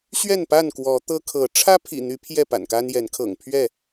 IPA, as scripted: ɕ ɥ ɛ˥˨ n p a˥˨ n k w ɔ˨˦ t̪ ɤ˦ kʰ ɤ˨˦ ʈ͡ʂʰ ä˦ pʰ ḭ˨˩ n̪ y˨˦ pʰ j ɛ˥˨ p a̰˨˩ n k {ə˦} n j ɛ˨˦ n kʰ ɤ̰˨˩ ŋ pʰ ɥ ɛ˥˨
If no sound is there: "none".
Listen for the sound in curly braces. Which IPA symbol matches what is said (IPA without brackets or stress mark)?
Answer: a˦